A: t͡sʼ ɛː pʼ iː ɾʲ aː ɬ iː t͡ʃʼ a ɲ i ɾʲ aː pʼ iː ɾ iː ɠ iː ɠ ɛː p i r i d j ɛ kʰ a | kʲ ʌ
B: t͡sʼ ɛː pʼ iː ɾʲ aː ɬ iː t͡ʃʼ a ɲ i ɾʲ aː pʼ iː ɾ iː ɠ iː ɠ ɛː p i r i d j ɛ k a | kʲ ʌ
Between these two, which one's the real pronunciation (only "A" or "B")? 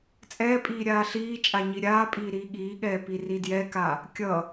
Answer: B